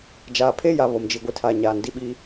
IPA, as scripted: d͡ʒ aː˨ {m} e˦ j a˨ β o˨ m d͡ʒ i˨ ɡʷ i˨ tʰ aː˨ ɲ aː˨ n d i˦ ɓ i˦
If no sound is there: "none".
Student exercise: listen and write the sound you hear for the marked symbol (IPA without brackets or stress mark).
pʰ